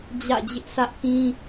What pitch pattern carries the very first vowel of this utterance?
falling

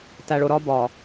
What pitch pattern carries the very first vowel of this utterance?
low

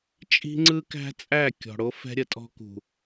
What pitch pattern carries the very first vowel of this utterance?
high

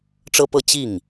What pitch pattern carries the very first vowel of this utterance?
high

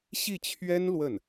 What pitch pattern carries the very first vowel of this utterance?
falling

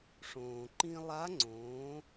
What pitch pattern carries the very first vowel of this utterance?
low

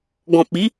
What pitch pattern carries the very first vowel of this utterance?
low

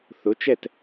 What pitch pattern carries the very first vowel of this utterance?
rising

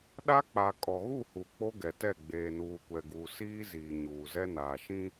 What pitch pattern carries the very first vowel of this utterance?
high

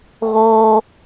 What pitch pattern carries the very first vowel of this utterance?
high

